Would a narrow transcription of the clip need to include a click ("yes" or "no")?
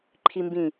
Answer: yes